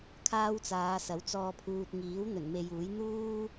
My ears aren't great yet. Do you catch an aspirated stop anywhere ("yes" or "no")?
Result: yes